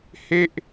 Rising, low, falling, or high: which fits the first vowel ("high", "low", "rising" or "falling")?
falling